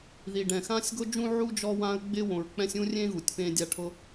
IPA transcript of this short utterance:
ð i˩ ɖ ɛ̃˩ x ã˥ sʲ ɡ o˥ d͡ʒ ũ˥ ʕ u˥ d͡ʒ ɔ˥ w ã˥ ə̯ ɡ͡b ɪ˥ w õ˩ ɹ k͡p ɛ̃˥ sʲ ũ˥ rʲ ẽ˥ ɣ u˩ tʲ p ẽ˥ dʲ a˥ ʈʰ ʊ˥

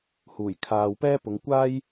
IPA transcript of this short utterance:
h uː˨˩ j kʰ aː˨ w p ɛː˥ p ʊ˨˧ ŋ kʷ aː˥ j

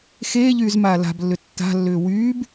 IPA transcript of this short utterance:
x eː ʎ yː z m aː l a̤ b lː ʏ tː a̤ lː ʏː w yː b

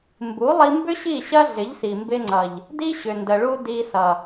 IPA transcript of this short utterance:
m b u˨˦ lˠ i˧ m b ʏ˦ ɕ i˦˨ ɕ ɐ˦ ɮ ɪ˨˦ ʎ s i˨ m b ɪ˧ ŋ͡ǀ ʌ˨ ʎ | d i˦ ɕ ʏ˨ n d ə˨ ɭ u˧ d i˧ s ʌ˨

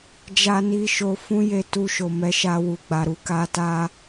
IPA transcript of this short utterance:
d͡ʒ a˧ n i˧ ʃ o˧ f ũ˦ j e˦ t u˧ ʃ o˨ m ɛ˨˦ ʃ a˧ w u˨ ɡ͡b a˨ ɾ u˧ k a˧ t a˦

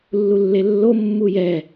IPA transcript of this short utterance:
lː u lː e lː o mː u j ɛ

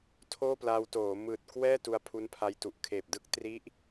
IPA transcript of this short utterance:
tʰ oː˥˩ p l aː˧ w t oː˩˦ m ɯː˨˩ t̚ k w ɛː˥˩ t u˧ a̯ pʰ u˦˥ n pʰ a˧ j t u˨˩ ʔ kʰ eː˨˩ p̚ d ɯ˥˩ k̚ t r i˦˥ ʔ

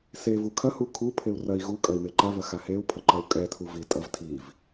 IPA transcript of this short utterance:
s e v u kʰ ɐ h u kʰ u pʰ e u̯ r ɐ i̯ ɣ u kʼ ɐ i̯ m e ǃ a v ɐ x a h e u̯ pʰ ɐ ǃ ɐ u̯ kʼ ɛ tʰ u v i tʼ ɐ v tʰ i v

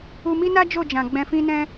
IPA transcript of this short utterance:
u˧ m i˦ n a˦ d͡ʒ o˦˨ d͡ʒ ã˨ ɡ͡b ɛ̃˧ f ĩ˦ n ɛ̃˦

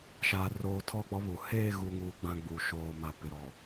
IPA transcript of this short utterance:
ʃ aː˨ r oː˨ tʰ ɔ˦˨ k͡p ɔ˦ β u˨ h eː˦˨ ɣ u˨ ŋ uː˨ ɡ͡b ã˨ ɡ͡b u˨ ʃ oː˨ m a˨ p ɪ˨ ɾ ɔ˨

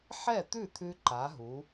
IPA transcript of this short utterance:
ħ ɛ˥˩ t̪ ʉ˥˩ t̪ʰ ʉ˧ ǃ a˨˥ ɦ u˨˥

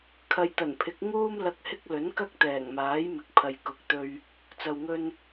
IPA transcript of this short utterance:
kʰ ɐ˨ j t̪ ɐ˨˩ n pʰ ɪ˨˥ k̚ ŋ uː˥ m l ɐ˧ k̚ h ɪ˥ k̚ l ɵ˨˥ n k ɐ˥ k̚ t̪ ɛː˨˩ ŋ m aː˨˥ j m ɪ˨ k̚ pʰ ɐ˨ j k ʊ˨˥ k̚ t̪ ɵ˧ ɥ | t͡s ɐ˨ w ŋ ɵ˧ n

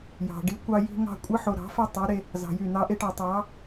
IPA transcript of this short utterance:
j ɑ̤˨ ɖ i˦ kʷ ɑ˦ j i̤˦ ŋ ɑ̤˦ kʷʼ ɯ˦ ħ o˨ ɾ ɑ̤˨˦ f e˦ tˤ i˨˦ ɾ e˦ | z ɑ̤˨ j y˦˨ n̪ ɑ˦ ʔ e˦ ʈ ɑ˨ tˤ ɑ˨˦

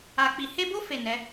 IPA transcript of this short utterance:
a˨ k͡p i˨ h e˧ b o˦ f e˦˨ n ɛ˨˦

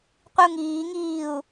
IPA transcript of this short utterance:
qʷ i u̯ ŋ iː ŋ iː u̯

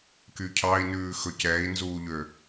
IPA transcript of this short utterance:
k y cʰ ɑ i̯ n ʉː x ɵ c ɛ i̯ n z uː ʎ ø

